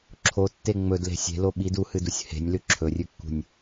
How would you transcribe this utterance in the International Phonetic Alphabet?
ǁʰotːe ŋ͡mɵdle̤ sʲe̤lo ɓid uhɨdusʲ he̤nʲlʉ ǁʰɵrʲʉkːṳnʲ

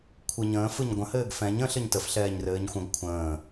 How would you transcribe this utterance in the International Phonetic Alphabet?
kʷʰɯɲə̃ː fɯɲɡʷə̃ hɘːɡfɛ̃ɲ ə̃ ɬɘɲtəf ɬɛːɲrɘːɲxʷə̃ɡ kʷʰə̃ː

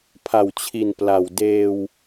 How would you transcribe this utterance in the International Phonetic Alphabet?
pʰa˨˩wt͡ɕʰi˨˩n pla˨˩w deː˧w

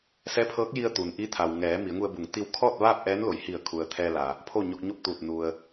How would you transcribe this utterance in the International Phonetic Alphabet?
sɛː˧˥pʰɤː˧˥k̚ji˧ə̯ t̪u˩n ʔi˧˥t̪ʰa˩w ŋɛː˩˧ mi˩˧ə̯ŋu˧ə̯bu˩˧ŋ t̪i˧w kʰɔː˥˨t̚ʋaː˥˨p̚ ʔɛː˧˥nlo˩˧jhi˧˩ə̯ kʰu˩ə̯t̪ʰɛː˧la˩ | pʰo˥˨ɲo˧k̚ɲo˥˨p̚t̪uː˧˩t̚ nu˩ə̯

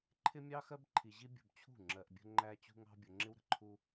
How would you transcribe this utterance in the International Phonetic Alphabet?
ǃʰɪ˦mʲɑ˦xɜ˦b ǃʰi˨ʑi˦bʲṳ˨b t͡ɕʰṳ˦˨ ŋ͡ǁɜ˨ʔbʲə̤˦ ŋ͡ǃæ˦t͡ɕṳ˦ŋɑ̤˦ bʲʊ˨ŋ͡ǁɪ˦wɾə̤˨ ǃʰu˦

